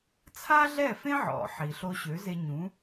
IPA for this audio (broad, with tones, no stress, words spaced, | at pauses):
t͡sʰa˥ɮɛ˥˩fẽ˥ʕɔ̰˩ ħi˩ɬo˧ ɕø˩˥ze˧ɲũ˩˥